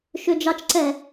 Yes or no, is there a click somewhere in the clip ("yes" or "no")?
yes